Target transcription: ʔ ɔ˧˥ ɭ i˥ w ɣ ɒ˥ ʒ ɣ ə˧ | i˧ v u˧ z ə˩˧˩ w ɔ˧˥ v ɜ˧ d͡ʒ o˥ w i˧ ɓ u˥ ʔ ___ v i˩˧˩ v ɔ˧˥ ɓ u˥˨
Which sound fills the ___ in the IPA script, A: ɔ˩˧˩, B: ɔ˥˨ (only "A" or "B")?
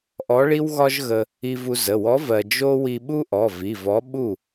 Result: A